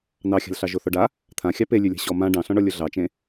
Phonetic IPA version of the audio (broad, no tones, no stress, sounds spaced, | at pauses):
n ɑ xʲ a̤ l ɬ ɑ ʒ o θ ɔ ɖ a | t̪ʰ ã xʲ ɑ p e lʲ ʉ lʲ a̤ ɕ ɔ m ã ɖ ɑ̃ ɬ ɔ̃ ɳ ɔ lʲ ʊ ɮ ɑ t͡ʃ ẽ